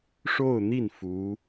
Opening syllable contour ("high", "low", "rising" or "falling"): falling